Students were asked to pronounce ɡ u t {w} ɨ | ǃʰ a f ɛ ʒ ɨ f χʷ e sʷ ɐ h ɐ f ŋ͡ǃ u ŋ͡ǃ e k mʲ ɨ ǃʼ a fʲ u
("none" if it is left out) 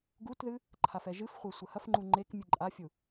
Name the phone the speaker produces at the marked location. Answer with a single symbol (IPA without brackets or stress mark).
ð